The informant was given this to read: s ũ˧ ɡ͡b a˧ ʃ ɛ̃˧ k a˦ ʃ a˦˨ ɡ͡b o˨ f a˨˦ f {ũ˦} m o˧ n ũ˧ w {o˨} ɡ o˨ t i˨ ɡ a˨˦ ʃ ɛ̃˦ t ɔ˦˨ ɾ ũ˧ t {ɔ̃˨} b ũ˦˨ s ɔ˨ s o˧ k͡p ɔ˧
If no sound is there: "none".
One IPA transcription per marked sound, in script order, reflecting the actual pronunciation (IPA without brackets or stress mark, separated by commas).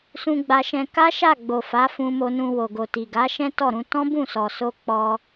ũ˧, o˨, ɔ̃˦